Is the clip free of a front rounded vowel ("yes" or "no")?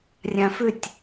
no